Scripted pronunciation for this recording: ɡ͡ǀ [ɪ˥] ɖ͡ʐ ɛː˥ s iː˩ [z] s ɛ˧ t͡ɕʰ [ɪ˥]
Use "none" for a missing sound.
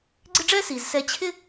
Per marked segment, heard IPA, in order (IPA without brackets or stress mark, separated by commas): ɪ˥, z, ɪ˥